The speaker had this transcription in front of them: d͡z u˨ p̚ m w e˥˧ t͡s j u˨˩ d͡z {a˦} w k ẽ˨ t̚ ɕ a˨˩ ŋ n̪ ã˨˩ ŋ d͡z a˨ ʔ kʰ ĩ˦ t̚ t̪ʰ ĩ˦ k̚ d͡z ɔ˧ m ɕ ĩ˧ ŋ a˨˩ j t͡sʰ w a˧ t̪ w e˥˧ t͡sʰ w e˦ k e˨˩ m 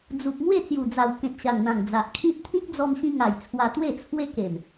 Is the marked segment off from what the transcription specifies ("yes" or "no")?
yes